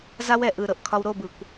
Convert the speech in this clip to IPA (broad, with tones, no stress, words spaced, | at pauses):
za˦wɛ˨ʔɯ˨ɾɤ˨ʔ kʰɒ˧wɾo˦˨bɯ˨kʷ